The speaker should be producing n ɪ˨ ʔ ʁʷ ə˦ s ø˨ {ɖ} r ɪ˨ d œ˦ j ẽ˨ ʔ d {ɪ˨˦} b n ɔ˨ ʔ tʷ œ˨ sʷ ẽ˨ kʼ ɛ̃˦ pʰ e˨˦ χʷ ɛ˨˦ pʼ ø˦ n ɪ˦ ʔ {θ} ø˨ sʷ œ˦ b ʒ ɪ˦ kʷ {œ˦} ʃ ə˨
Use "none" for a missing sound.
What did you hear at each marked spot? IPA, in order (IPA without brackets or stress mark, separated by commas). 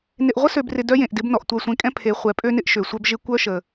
b, ɪ˨˦, ʃ, œ˦